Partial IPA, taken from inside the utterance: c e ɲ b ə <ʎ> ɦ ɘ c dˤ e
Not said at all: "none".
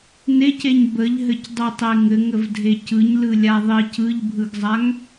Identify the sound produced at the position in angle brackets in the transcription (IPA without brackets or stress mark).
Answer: ʎ